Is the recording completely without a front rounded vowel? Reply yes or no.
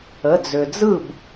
no